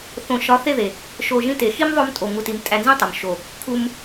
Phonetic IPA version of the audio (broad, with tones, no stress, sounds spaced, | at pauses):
θ õ˨ ʃ ɒ˨˦ θ e˦˨ ð e˨ | ʃ o˨ ʒ ĩ˧ t e˨ x i˦ m ðˤ o˧ m tʼ o˨ ŋ u˨ t i˨ m tʼ æ˧ n z ĩ˦ tˤ o˨ m ʃ o˨ | kʰ u˧ m